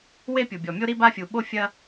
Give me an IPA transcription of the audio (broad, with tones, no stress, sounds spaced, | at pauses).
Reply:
w e˥ pʲ u˩ bʲ ɔ˩ mʲ o˥ ɾ i˥ b a˥ fʲ u˩ ɓ o˥ fʲ ɐ˥